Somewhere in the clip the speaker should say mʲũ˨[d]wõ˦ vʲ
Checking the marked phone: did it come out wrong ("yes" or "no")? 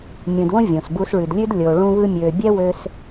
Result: no